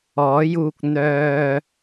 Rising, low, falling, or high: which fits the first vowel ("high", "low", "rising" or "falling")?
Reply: rising